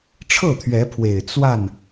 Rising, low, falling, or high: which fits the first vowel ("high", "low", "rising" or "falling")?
falling